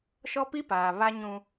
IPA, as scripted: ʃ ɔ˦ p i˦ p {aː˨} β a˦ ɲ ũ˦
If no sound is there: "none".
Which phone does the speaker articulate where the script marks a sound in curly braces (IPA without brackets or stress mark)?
aː˨